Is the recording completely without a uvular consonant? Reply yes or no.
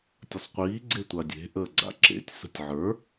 no